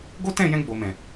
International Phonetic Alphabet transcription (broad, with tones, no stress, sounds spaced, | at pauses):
ɡ o˦ t ɛ̃˦˨ j ɛ̃˧ ɡ͡b o˨ m ɛ̃˨